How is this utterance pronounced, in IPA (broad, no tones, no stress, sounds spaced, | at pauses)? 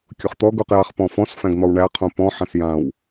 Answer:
kʲ ʊ χ t̪ ɔ ɡ u q j a χ p ɔ̃ f ɔ̃ s f æ̃ ɡ n̪ ɔ w ɳ æ qʰ ũ p ɔ̃ ħ ã s j ã w